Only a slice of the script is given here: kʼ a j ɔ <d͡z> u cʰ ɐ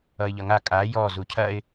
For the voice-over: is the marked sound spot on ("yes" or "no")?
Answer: no